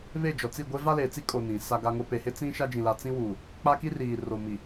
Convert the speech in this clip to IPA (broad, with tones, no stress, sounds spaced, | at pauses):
β e˦˨ d͡ʒ ɔ˨ t͡s i˦˨ ɡʷ e˦ v a˦ l eː˨ t͡s i˦ kʼ o˨ n ĩ˨ s a˦ ɡ a˦ ŋ o˦ p e˨ h ɪ˦ t͡s ĩ˦ ʃ a˦ d͡ʒ ĩ˨ l a˨ t͡s ĩ˦ w uː˨ | k͡p a˦ k i˦ r iː˨ r o˨ m i˨